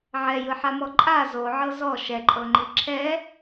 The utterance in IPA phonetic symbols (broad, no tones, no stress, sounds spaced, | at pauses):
ʕ ɛ j ɯ ħ a m ɔ ǃʼ a z o ʕ ɤ z ɔ ʃ ɛ ǃʼ ɤ ŋ͡ǃ i ǁʰ ɛ